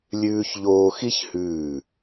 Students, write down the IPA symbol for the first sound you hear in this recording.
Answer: lʲ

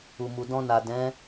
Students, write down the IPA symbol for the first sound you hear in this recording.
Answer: u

